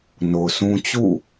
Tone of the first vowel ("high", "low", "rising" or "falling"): low